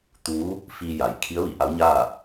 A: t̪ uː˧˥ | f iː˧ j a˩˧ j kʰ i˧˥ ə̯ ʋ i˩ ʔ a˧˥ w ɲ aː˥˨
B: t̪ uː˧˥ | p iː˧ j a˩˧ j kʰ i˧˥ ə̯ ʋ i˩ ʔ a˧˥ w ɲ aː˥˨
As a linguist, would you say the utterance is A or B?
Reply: A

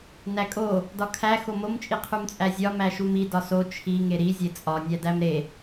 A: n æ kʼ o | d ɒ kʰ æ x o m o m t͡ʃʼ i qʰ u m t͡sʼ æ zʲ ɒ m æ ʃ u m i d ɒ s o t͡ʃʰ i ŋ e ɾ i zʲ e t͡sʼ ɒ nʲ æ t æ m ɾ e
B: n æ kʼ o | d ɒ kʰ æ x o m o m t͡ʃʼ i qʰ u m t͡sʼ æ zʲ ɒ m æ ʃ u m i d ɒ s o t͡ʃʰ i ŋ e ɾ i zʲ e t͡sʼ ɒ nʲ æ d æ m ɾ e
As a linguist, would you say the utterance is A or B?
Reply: B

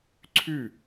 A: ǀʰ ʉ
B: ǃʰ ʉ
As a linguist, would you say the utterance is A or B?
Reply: A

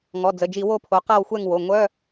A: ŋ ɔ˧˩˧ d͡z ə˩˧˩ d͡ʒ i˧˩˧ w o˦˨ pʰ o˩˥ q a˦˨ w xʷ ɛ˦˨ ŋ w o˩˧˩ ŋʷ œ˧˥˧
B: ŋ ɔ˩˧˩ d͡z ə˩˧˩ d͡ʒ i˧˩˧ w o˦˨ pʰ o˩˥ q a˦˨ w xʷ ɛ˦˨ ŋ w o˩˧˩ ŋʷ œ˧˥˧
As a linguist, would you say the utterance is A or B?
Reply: B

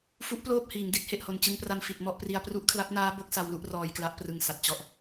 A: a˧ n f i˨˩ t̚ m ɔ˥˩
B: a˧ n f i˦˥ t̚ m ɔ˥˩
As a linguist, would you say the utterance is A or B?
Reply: A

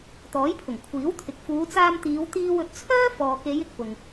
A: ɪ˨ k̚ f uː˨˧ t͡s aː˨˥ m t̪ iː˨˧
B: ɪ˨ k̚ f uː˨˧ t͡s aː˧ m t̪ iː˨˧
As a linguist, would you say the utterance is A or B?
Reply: B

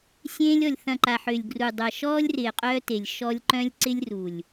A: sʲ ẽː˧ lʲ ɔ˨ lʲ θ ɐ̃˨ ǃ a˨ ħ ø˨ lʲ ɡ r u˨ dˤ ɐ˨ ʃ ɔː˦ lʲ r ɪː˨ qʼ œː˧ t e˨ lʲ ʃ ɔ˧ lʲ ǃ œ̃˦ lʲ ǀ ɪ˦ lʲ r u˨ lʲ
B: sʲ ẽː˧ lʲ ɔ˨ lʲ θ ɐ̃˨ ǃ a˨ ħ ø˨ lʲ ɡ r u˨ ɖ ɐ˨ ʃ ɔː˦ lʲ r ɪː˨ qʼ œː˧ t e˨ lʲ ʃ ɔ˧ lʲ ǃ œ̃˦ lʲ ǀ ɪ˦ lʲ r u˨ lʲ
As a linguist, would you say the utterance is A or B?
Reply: A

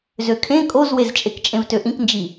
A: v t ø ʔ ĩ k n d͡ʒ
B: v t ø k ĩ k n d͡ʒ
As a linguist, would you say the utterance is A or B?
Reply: A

